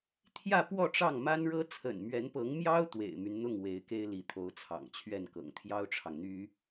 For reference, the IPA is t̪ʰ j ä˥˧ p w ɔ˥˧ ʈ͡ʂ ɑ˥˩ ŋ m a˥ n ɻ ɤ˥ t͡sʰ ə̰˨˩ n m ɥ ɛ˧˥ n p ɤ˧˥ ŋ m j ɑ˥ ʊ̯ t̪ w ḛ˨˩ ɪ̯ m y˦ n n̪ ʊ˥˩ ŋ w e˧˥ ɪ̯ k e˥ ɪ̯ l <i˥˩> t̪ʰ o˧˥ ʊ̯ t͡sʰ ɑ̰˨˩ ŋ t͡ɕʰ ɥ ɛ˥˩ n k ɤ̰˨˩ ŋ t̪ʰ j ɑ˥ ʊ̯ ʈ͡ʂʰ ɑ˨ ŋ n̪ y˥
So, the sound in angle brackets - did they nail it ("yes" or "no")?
no